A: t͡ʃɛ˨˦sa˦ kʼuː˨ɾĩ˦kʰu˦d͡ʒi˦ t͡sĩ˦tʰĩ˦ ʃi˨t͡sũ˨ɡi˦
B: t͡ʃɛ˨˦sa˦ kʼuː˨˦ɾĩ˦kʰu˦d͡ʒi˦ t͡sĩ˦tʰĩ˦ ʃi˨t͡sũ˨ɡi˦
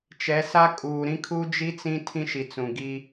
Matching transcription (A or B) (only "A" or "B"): A